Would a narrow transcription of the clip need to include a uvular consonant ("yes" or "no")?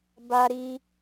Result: no